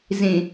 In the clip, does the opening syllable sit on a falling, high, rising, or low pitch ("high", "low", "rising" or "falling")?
low